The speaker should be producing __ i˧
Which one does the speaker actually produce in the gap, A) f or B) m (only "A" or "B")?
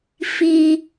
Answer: A